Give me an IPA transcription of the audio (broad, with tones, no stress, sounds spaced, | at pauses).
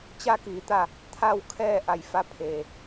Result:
t͡ɕ a˧ k iː˩˧ t̪ a˧˩ | t̪ʰ a˥˨ w kʰ ɛː˥˨ ʔ a˧˩ j f a˧˥ pʰ eː˩